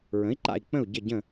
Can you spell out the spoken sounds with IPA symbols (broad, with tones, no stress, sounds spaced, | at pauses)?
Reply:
ɹ ə̃˨˥ i̯ ǃ a̰˦˨ i̯ k͡p ə̃˦˨ u̯ ɟ ə˦˨ ɟ ə̃˦˨